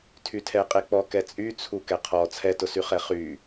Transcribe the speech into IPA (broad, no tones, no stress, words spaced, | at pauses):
tʰytʰɛqʼek͡pɔ kɛt͡sʼyt͡sʰu kɛqʰɔ t͡sʰɛtʊsyχɛ χy